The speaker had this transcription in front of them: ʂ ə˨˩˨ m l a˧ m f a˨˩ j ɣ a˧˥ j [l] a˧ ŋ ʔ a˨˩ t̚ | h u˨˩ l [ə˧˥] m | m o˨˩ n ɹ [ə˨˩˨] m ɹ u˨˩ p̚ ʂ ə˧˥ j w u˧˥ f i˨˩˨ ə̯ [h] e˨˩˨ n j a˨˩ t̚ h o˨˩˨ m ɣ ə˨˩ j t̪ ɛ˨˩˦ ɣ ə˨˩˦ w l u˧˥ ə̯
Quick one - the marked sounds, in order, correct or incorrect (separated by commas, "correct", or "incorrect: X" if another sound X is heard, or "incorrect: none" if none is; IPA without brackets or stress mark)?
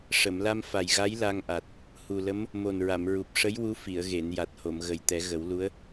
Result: correct, correct, incorrect: a˨˩˨, incorrect: ɣ